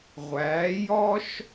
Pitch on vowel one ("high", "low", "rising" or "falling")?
rising